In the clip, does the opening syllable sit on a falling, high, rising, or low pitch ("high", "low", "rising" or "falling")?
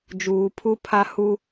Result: low